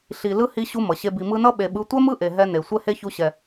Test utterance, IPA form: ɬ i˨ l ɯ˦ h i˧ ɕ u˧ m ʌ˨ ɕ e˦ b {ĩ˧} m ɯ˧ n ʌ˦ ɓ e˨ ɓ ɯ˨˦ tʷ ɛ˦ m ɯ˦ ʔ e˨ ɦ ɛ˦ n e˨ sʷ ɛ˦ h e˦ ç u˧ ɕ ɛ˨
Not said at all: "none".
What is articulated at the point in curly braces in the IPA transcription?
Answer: i˧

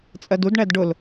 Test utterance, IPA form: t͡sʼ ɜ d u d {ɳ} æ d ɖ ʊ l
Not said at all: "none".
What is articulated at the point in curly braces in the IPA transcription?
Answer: ɳ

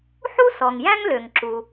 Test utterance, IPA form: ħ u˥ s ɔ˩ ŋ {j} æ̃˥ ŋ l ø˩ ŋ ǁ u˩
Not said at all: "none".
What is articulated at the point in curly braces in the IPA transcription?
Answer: j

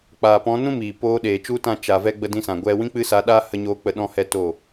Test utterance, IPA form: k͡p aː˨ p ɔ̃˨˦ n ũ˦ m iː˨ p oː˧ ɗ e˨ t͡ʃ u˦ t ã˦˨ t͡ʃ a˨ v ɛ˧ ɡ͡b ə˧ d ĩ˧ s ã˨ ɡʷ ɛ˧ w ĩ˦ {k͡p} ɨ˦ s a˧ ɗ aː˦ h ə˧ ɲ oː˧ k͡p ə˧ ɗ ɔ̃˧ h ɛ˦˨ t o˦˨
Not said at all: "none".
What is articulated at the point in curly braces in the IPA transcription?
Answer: k͡p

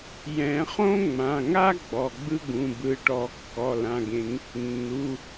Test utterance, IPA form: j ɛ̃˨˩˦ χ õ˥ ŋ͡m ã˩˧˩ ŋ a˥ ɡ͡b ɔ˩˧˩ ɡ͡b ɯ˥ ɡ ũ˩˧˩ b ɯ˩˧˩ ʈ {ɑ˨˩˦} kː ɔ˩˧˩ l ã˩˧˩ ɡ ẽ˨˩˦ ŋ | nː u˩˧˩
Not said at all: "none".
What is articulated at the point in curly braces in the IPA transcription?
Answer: ɔ˨˩˦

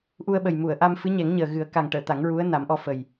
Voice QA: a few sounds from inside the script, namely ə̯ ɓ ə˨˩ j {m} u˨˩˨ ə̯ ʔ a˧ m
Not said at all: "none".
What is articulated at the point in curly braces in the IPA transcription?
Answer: m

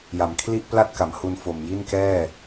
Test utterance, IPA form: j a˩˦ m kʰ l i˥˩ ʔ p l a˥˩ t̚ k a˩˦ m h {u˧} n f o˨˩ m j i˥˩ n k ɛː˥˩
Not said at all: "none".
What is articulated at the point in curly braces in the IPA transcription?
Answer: u˧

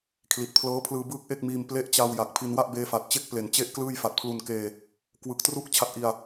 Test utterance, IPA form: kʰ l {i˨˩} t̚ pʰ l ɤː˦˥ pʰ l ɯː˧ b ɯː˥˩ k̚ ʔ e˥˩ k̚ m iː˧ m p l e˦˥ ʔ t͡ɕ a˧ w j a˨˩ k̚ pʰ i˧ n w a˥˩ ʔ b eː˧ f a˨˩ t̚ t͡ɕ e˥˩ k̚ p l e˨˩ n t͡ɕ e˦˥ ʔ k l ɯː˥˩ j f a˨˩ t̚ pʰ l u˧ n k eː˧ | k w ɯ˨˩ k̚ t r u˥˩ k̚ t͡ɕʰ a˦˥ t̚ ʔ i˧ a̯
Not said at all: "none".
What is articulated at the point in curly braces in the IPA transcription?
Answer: i˨˩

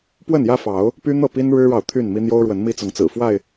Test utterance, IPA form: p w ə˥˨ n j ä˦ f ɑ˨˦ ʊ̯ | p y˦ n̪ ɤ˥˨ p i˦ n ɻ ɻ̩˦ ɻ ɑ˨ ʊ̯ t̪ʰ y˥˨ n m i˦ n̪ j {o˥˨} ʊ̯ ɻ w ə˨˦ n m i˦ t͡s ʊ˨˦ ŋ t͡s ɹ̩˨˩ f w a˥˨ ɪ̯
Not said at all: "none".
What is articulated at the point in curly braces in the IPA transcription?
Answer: o˦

